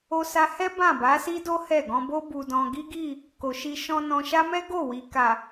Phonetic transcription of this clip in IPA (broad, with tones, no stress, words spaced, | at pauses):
o˧sa˧hɛ˦ bã˦˨ba˨˦si˦do˦ hɛ˦˨ ɡɔ̃˧bo˦ bu˧dɔ̃˧ ɡi˦ɡi˦˨ | ko˨ʃi˧ ʃɔ̃˧ nɔ̃˧ ʃa˦mɛ˦ɡo˦˨ wi˨ka˨